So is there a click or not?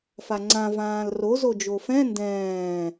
yes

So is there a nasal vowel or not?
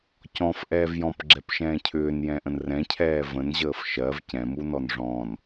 yes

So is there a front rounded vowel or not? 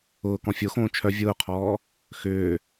yes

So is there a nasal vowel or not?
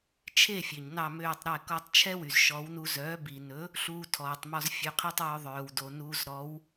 no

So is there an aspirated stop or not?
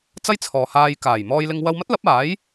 yes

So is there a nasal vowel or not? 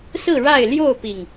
no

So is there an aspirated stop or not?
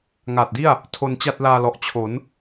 yes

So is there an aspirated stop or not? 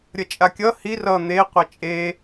no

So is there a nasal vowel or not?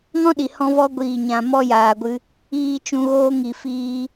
yes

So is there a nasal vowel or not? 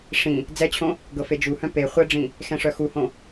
yes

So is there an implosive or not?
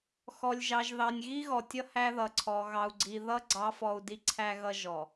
no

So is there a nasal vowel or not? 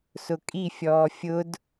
no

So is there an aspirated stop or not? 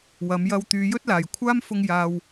yes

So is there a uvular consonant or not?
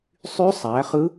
yes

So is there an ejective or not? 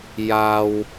no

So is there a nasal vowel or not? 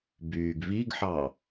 no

